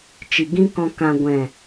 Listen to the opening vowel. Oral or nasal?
oral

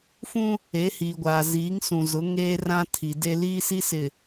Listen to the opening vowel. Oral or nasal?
nasal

